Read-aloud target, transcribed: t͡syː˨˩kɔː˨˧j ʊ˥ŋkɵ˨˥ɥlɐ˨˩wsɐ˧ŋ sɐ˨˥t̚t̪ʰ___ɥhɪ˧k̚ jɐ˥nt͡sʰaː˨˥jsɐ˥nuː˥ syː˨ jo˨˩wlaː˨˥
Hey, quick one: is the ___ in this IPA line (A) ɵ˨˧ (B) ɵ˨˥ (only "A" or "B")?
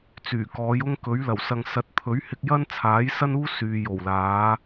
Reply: B